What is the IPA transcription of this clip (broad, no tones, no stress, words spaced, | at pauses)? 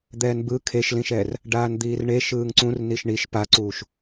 d̪ɛːnbɯ kʰeʃlĩʃɛːr | ɖaːnd̪iːrɳe ʃɯːŋǀũrniʃ ɳiʃ paǀuːʃ